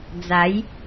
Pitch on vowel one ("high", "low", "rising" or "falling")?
rising